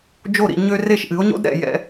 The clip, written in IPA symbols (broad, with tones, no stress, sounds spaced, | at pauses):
d͡ʒ o˥˩ ɾ ḭ˥˩ ɲ ø˥ r e˥˩ ʃ ʔ ɨ˩˥ o̯ ɲ o̰˥ d ɾ ɛ̰˥˩ j ɛ̰˧